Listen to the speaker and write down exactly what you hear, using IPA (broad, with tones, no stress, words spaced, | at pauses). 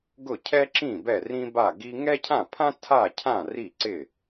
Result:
ɡʊ˥˩cʰɛ˥ǁĩ˥˩ bɛ˥˩rĩ˥ba˥˩ɡi˥ ŋɛ˥cʰã˥˩pʰã˥ tʰa˥˩cʰã˥˩ ri˥˩ǀɪ˥˩